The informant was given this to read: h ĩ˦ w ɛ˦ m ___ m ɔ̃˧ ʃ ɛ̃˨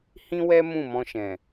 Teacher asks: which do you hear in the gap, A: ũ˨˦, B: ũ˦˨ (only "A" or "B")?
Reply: B